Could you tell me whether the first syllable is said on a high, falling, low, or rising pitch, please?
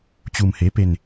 low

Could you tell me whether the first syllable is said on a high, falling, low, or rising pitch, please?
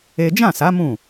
high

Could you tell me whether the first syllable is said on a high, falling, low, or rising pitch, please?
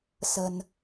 low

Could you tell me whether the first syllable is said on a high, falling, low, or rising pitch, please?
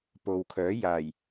low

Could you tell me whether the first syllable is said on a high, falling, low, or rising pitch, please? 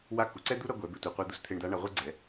rising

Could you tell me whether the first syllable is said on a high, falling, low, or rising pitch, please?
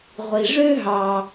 low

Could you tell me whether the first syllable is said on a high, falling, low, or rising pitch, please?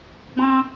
high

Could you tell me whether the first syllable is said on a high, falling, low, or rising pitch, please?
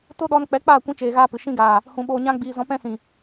high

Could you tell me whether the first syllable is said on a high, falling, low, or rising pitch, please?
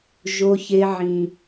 high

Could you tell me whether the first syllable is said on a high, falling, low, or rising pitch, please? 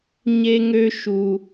high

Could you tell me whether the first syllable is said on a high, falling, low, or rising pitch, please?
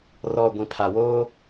low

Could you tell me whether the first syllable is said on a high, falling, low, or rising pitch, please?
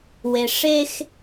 low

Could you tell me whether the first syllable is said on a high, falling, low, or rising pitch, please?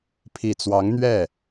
low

